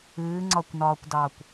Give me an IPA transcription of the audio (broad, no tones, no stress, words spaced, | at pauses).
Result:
ɨːŋ͡ǀɒkʷnɒːkʷdɑːkʷ